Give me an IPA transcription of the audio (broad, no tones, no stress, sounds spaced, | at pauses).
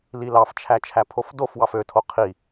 l i l ɑ f t͡ʃʰ æ t͡ʃʰ æ pʰ o f d o f w ɑ f ø tʰ o qʰ i